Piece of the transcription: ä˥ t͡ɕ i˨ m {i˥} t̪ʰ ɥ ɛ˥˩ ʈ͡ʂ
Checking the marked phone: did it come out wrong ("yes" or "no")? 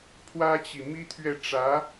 no